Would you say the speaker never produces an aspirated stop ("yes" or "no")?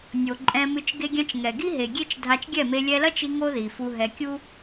yes